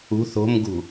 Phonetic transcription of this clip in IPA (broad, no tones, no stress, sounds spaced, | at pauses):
ṳ θ o̤ m ɡ ṳ